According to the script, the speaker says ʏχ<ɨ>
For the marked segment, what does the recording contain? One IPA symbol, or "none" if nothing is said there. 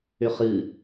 ɨ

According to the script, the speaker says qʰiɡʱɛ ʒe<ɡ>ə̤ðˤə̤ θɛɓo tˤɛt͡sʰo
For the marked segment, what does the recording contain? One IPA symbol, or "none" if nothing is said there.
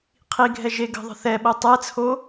ɡ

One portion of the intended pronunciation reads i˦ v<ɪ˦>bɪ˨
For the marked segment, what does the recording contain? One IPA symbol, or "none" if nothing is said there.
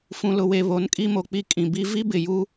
i˦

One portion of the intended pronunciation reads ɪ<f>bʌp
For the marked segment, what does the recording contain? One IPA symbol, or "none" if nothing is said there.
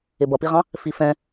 none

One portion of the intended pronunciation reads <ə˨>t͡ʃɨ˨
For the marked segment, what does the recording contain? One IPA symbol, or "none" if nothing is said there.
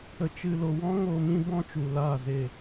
ə˨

